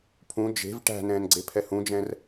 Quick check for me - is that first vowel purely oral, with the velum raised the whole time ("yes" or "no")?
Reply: no